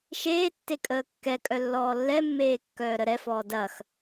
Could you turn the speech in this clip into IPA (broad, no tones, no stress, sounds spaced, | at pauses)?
ʃ eː tː e kʼ əː kː ɛ kʼ œ lː ɔː lː ɛ mː eː kː œː ɾ ə ɾ ɛ f ɔː d ɐ x